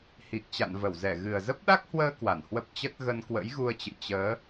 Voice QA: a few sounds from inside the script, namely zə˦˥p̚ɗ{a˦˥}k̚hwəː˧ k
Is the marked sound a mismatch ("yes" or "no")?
no